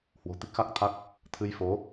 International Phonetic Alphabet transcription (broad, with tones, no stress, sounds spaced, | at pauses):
h w o̤˨˩ t̪ i˦˥ k̚ x a˦˥ k̚ t̪ʰ a˦˥ k̚ | t̪ʰ ɨ˧ j f o˨˦